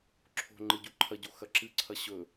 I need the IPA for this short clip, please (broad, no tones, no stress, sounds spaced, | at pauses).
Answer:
ǁʰ o̤ ŋ͡ǃ ɨ ɟ u ǃʰ ɐ ɟ o x ɐ ǁ ɨ ǀʰ ɐ ɕ ɵ